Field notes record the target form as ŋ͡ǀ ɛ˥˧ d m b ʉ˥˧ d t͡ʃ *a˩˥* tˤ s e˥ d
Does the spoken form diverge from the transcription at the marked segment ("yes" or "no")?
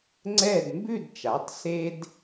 no